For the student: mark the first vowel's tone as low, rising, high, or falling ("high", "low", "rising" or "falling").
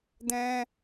high